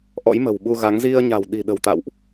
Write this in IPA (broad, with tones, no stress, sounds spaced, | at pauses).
ʔ ɔ̰˧˥ j m ə̤˨˩ w ɓ u˧ ɣ a˨˦ ŋ z i˧ ə̯ ɲ a̤˨˩ w ɗ i̤˨˩ ɗ ə̤˨˩ w t̪ a̰˧˨ w ʔ